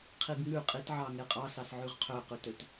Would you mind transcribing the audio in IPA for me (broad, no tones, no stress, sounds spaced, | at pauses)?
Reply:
qʰ i ɡ ŋ ʉ qʼ i t ʕ ɑ ŋ e qʼ ɑ s ɑ s ʕ ʉ ʁ qʰ ø q ʉ t ø t